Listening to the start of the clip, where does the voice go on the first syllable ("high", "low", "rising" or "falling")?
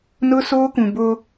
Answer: high